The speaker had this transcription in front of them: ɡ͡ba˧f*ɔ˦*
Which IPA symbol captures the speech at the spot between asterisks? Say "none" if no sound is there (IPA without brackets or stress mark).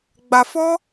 ɔ˦